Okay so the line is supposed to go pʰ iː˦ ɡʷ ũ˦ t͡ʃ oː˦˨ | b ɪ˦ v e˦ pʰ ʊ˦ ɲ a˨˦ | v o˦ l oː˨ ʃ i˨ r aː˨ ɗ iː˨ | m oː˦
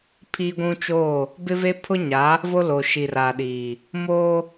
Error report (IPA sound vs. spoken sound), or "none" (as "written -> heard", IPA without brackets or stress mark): none